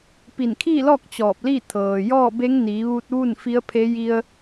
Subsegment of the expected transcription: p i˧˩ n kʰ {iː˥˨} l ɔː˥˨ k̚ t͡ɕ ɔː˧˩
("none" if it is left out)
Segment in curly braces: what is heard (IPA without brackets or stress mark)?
iː˥˨